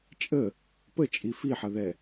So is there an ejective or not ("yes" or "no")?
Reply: yes